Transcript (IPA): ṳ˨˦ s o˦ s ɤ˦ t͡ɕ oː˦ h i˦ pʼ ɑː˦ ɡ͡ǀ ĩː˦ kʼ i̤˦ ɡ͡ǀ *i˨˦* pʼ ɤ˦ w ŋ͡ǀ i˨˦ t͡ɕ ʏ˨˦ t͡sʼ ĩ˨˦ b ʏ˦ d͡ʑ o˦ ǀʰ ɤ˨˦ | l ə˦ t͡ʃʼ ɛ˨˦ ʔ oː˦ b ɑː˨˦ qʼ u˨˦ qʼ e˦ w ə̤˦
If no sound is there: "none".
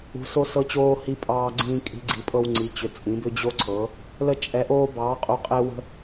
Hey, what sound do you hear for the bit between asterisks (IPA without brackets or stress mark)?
i˨˦